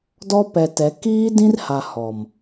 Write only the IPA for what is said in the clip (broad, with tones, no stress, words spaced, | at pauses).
dɔ˦ pɛ˨tɛ˨˦ kiː˦dĩ˦rha˨ hɔ˨m